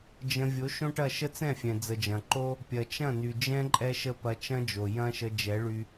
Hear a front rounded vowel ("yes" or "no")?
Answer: yes